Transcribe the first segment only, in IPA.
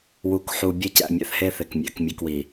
w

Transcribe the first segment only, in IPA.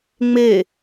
ŋ͡m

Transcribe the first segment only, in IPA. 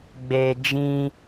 ɡ͡b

